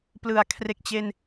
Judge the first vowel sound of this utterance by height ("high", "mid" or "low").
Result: high